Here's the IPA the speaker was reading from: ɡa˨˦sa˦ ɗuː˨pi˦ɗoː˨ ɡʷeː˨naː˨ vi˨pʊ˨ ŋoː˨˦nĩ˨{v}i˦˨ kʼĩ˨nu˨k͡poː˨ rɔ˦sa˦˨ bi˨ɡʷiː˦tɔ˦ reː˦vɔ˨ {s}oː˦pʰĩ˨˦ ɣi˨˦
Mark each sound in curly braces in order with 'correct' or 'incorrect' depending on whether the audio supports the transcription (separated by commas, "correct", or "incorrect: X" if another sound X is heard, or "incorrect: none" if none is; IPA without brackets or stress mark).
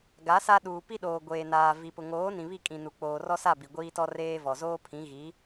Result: incorrect: β, incorrect: z